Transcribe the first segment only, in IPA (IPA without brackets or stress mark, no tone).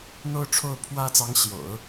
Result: n̪